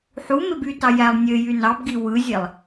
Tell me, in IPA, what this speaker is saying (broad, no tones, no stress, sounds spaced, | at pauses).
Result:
ħ u m e b y t ɑ j æ lˠ nʲ ø j y n ɑ b ɡ i w ɯ zʲ e lˠ